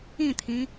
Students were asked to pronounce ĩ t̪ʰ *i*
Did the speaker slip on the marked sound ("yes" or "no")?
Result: yes